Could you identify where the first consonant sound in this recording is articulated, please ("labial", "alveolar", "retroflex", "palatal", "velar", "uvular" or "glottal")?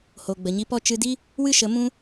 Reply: glottal